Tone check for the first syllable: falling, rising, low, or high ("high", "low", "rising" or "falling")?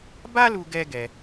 high